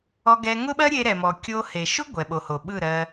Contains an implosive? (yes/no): yes